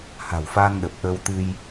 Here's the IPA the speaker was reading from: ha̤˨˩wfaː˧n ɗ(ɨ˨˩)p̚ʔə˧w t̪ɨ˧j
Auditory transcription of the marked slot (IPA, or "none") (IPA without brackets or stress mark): ə˨˩